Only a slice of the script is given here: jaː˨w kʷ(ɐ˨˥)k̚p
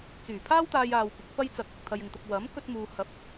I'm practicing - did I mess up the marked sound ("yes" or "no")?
no